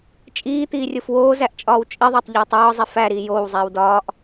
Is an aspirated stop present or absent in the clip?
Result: absent